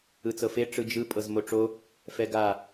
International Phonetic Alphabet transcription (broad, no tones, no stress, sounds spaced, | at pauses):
ɯ t͡s ɤ f e ʈ͡ʂ ɯ d͡ʒ ɯ pʼ ɤ z m o ʈ͡ʂ o | f ɛ ɡ a